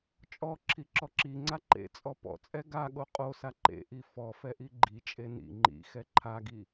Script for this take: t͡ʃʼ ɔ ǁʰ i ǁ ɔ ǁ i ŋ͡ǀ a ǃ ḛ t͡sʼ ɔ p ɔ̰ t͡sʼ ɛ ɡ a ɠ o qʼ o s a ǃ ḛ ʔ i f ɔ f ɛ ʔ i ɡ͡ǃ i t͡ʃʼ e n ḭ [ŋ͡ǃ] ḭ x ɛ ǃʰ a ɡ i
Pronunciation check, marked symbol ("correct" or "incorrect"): correct